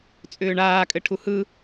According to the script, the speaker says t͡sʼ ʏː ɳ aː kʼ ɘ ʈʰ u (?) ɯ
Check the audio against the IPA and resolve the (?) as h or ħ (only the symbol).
h